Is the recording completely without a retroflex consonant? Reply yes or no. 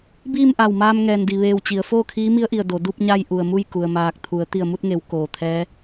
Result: yes